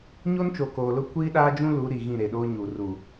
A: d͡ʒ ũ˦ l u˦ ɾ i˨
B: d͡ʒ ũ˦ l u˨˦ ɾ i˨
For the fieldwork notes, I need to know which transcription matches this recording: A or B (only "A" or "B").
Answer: B